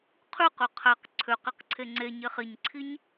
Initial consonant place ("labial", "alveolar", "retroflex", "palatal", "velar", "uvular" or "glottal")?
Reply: uvular